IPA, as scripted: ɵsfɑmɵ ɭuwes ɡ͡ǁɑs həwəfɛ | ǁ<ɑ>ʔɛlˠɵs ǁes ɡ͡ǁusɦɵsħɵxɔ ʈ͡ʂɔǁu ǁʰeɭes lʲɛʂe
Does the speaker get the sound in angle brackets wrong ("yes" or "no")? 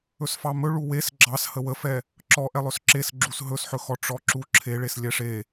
yes